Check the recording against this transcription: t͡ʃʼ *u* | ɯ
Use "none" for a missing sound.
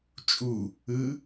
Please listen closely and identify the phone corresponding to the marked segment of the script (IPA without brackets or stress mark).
u